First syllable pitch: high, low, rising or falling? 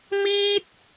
high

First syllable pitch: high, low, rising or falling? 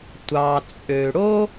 low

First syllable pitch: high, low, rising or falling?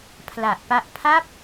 low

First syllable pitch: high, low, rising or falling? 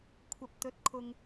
low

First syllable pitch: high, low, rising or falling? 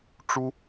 high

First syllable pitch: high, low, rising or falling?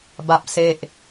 low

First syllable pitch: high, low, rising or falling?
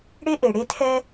high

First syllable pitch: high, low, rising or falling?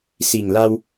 low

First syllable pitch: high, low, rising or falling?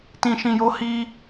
low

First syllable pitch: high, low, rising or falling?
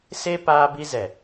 high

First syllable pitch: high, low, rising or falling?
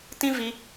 high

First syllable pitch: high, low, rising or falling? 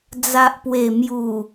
low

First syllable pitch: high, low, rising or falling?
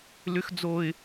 high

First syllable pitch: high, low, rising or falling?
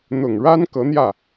low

